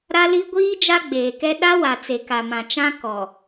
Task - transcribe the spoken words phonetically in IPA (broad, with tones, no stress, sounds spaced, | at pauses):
ɾ a˦ l i˦ ɡʷ iː˦ d͡ʒ a˦ ɡ͡b eː˨ k ɛ˦ ɗ a˦ w a˨ t͡s e˨ k a˨ m ã˨ t͡ʃ ã˦ k ɔ˨